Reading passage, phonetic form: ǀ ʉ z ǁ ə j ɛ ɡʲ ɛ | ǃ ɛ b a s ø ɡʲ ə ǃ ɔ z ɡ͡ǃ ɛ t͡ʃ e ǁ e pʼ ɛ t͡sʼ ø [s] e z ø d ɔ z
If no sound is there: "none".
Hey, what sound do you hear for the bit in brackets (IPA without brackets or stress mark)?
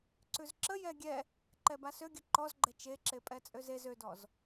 z